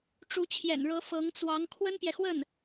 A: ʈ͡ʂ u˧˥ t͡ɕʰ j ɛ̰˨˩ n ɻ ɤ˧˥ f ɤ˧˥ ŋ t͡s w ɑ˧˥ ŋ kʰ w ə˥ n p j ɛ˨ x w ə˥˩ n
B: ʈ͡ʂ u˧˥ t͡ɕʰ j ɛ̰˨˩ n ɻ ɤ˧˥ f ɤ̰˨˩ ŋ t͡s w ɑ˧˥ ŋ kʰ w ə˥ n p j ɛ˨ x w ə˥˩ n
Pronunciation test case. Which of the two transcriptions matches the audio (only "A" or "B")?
A